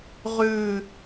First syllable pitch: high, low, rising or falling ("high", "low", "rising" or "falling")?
falling